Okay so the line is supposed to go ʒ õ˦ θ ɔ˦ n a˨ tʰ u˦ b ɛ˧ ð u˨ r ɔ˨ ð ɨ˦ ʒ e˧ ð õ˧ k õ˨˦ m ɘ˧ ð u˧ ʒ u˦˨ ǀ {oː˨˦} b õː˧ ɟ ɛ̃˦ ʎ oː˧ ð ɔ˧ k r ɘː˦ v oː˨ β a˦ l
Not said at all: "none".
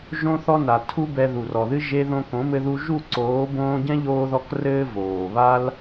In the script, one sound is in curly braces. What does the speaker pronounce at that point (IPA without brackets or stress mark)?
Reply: oː˨˦